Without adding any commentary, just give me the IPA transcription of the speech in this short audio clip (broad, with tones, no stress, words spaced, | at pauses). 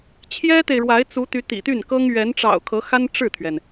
t͡ɕʰjɛ˥t̪e˨ɪ̯ɻwa˧˥ɪ̯ t͡su˧˥t̪y˧˥ t̪ḭ˨˩t̪y˥˩nkɤ˥ŋ ɥɛ˧˥nʈ͡ʂɑ̰˨˩ʊ̯ kʰɤ˧˥xa˥n ʈ͡ʂɻ̩˥˩t̪ʰɥɛ˩n